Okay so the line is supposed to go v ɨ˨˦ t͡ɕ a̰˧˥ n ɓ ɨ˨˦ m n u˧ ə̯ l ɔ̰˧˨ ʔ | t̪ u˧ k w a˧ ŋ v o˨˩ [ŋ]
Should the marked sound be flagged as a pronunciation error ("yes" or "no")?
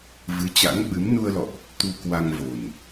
yes